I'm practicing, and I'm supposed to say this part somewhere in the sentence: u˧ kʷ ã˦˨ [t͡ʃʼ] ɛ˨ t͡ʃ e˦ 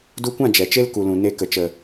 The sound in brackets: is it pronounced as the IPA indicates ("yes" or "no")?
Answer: no